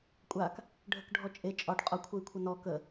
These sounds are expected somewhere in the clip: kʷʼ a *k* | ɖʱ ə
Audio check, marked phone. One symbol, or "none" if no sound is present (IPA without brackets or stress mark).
k